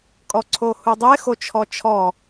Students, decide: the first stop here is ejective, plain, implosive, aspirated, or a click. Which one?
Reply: ejective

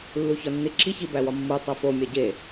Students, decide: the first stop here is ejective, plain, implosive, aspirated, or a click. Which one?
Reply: click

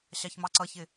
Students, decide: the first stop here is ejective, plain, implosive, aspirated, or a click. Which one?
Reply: click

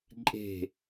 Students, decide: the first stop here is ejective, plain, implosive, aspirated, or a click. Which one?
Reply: click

